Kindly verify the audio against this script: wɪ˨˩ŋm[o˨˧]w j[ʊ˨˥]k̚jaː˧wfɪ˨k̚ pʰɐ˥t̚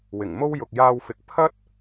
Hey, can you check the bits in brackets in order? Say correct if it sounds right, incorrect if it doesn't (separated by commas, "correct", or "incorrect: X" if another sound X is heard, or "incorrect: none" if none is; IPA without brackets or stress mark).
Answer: incorrect: o˥, incorrect: ʊ˨